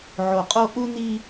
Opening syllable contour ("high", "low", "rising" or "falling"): low